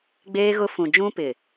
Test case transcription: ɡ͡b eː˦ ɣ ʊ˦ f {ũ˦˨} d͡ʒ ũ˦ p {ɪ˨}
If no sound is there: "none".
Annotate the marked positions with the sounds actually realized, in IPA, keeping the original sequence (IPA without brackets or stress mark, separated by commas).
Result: ũ˨, ɪ˨